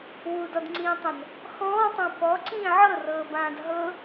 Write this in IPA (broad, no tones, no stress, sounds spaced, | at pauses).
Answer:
w u d ɔ d ŋ͡ǀ ĩː tˤ ɛ̃ n | x ɔ̃ː tˤ ã p ɔ ǀ ĩː ʕ ɤ r ɤː b ãː d ɦ ɤ